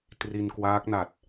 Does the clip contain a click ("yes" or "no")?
no